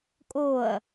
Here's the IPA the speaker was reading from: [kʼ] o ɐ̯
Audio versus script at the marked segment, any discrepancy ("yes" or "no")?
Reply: no